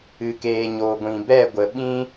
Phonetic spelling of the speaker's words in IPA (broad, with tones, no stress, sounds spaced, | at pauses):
ɨ˨ k eː˨ ɲ oː˨ ɡʷ ĩ˨ b ɛ˦˨ ɡʷ ə˨ ɓ ĩ˦